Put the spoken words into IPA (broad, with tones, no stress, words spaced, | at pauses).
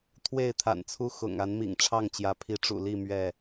t̪ʰwe˥˨ɪ̯t̪ʰa̰˨˩nt͡sʰu˦ xʊ̰˨˩ŋ a˨˦nmḭ˨˩ŋʈ͡ʂʰɑ˥˨ŋt͡ɕjä˨˦ pʰi˨˦ʈ͡ʂṵ˨˩li˥˨ mɥɛ˥˨